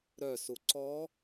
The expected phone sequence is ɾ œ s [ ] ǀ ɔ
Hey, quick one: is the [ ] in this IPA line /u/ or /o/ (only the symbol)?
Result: u